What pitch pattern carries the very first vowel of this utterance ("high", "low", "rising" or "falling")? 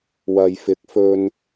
low